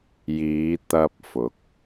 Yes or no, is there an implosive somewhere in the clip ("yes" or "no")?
no